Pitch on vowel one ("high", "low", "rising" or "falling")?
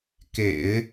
low